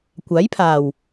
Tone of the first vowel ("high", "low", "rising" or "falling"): rising